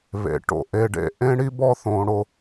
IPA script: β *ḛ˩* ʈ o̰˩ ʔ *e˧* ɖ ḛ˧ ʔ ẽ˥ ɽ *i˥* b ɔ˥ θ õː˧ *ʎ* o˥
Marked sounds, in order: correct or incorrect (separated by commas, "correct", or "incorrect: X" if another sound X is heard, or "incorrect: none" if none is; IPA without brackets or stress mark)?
correct, correct, correct, incorrect: ɽ